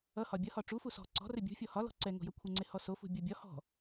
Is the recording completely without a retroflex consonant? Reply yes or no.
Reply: no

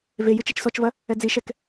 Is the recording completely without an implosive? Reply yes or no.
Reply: yes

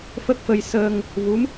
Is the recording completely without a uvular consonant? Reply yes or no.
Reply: yes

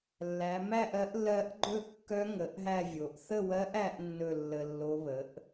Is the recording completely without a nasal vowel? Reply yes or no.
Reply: yes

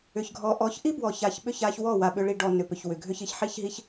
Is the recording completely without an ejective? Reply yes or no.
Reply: yes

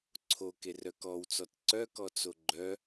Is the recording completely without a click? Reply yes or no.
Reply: no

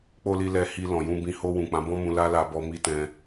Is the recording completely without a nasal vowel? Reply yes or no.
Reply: no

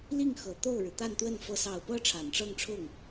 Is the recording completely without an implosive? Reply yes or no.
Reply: yes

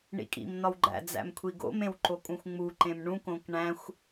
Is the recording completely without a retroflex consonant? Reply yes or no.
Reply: no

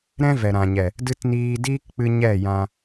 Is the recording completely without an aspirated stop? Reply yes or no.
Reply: yes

